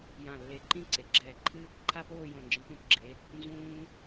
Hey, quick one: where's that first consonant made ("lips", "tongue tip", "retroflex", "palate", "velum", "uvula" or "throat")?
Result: palate